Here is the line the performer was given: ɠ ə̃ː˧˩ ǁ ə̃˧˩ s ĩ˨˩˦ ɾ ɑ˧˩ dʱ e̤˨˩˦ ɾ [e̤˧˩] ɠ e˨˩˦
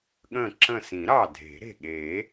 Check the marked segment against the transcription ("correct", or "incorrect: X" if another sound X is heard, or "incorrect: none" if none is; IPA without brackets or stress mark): correct